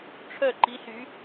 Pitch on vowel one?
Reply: falling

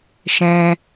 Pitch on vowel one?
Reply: high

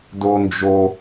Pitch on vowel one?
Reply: high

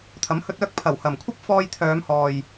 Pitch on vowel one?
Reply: rising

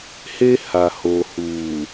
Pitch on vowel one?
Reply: high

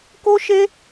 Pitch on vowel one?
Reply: high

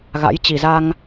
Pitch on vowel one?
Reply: rising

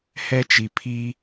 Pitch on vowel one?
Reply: high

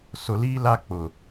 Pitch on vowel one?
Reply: low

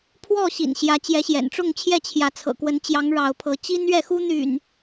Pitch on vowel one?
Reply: falling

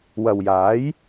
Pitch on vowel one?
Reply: low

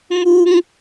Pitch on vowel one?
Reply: high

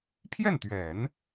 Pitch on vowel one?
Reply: falling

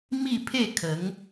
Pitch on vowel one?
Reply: falling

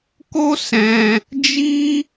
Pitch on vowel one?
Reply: high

